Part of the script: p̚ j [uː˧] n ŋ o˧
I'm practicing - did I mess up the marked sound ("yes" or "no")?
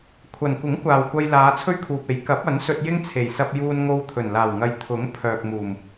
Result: no